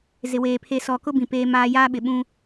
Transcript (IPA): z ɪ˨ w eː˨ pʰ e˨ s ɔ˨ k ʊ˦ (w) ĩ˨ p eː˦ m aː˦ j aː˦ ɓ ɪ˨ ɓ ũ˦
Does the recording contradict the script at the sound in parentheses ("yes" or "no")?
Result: yes